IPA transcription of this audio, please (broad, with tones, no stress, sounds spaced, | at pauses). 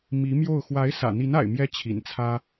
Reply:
m i˧˥ m j o˥˩ ʊ̯ x w a˧˥ ɪ̯ s ä̰˨˩ n̪ i˧˥ n a̰˨˩ ɪ̯ m j ɛ˥ t͡ɕʰ ḭ˨˩ n t͡sʰ ä˥